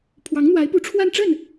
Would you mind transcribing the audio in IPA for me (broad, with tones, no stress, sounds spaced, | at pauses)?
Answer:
pʰ w ɑ˧˥ ŋ n̪ w a˧˥ ɪ̯ p u˧˥ ʈ͡ʂʰ w a˥˧ n ʈ͡ʂ ə˥˩ n